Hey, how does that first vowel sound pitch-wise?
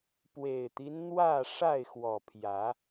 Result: low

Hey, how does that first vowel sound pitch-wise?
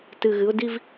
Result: low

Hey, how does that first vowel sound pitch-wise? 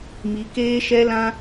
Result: rising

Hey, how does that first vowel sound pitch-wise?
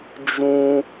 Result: high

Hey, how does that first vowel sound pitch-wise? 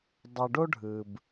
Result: low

